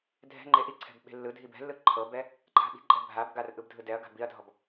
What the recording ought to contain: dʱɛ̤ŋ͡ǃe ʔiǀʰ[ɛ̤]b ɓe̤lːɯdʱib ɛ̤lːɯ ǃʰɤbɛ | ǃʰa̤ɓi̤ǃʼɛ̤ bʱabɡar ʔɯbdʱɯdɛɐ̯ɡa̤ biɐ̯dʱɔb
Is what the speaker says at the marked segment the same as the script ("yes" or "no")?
yes